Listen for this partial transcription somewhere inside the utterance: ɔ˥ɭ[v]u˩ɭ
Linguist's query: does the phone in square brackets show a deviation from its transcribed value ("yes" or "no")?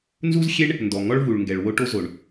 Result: no